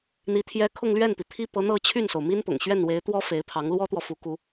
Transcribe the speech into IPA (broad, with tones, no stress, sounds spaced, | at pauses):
n̪ i˧˥ t̪ʰ j ɛ˥ kʰ ʊ˥˧ ŋ l ɥ ɛ˥˩ n p i˩ t̪ʰ i˥ p ɤ˧˥ n̪ ɤ˥˧ t͡ɕʰ y˥˩ n s o˩ ʊ̯ m i˥ n p ʊ̰˨˩ ŋ ɕ ɥ ɛ˥˩ n w e˧˥ ɪ̯ t̪ w ɔ˥ f e˧˥ ɪ̯ pʰ ɑ˧˥ ŋ l w ɔ˥ t̪ w ɔ˨ f u˧˥ k u˥